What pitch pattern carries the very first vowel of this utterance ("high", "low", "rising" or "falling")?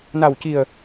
low